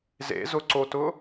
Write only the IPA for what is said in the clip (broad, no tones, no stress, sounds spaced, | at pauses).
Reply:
z ḛ z ʊ ǀ o t ʊ